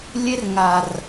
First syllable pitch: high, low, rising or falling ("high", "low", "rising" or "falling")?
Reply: high